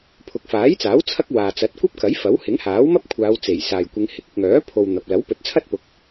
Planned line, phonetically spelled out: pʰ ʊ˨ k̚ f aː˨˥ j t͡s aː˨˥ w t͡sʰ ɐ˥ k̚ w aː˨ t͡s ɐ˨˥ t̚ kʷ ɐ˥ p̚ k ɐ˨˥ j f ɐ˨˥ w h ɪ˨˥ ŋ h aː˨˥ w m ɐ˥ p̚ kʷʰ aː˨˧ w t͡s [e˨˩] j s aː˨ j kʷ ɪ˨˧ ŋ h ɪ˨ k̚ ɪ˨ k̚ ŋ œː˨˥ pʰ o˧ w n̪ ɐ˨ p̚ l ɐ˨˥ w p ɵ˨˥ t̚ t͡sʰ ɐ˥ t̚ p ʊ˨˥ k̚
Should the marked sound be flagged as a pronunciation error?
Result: no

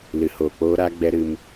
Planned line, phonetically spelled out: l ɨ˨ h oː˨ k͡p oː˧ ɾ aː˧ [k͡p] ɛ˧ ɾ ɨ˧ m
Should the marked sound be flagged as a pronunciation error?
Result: yes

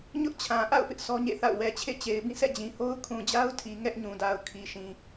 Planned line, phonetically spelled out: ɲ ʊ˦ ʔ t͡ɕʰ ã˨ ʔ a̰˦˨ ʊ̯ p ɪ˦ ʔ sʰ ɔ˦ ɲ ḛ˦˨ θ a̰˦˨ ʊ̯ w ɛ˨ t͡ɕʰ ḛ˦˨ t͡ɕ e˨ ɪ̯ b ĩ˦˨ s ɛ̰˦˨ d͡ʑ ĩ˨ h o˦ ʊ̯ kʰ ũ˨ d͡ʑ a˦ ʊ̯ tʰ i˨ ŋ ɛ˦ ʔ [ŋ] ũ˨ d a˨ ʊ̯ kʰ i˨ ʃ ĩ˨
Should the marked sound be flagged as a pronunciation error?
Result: yes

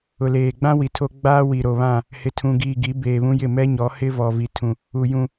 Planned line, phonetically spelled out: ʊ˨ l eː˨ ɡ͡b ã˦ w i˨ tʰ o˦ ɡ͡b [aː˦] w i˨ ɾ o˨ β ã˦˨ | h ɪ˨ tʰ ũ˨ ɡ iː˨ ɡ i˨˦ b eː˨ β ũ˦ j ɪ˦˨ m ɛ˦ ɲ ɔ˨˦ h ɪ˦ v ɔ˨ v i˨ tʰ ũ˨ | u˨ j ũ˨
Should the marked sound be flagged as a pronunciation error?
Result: no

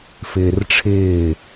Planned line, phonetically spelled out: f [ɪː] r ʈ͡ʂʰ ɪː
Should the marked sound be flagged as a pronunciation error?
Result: no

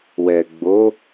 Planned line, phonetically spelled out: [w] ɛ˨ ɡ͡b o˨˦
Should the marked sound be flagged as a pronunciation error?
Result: no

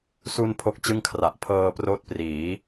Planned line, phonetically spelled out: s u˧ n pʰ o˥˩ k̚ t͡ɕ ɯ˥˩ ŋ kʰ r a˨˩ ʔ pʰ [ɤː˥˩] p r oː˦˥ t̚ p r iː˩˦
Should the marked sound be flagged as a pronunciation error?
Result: yes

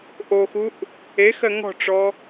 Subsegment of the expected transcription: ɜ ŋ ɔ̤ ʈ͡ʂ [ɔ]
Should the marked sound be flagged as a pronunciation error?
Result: no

